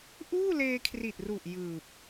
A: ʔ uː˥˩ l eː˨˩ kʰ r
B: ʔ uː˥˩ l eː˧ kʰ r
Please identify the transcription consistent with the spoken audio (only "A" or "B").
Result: B